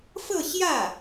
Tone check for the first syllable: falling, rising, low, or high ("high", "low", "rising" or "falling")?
falling